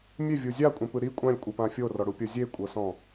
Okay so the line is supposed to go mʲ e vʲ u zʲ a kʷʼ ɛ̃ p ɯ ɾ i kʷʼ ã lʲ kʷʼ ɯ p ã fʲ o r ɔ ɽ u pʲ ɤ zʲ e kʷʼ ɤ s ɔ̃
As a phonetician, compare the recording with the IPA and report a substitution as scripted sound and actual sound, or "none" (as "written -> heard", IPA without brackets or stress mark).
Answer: none